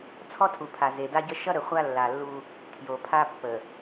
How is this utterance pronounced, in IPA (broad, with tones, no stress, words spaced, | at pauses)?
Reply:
t͡sʰɔ˦tʰu˨pʰa˨ ze˨da˦ɟə˦ ʃʌ˦ɾə˨χʷa˦ lːa˨lːu˦ | tʰjo˨pʰa˦pːə˨